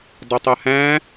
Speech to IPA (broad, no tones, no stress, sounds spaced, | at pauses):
dˤ ɘ tˤ a h æ̃